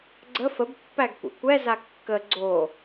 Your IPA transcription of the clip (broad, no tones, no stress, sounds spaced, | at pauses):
ɡ͡ǀ ə f ə b pː æ ɡ kʷ ɛ̰ kʷ ɛ z a kː ə ɡ͡ǀ o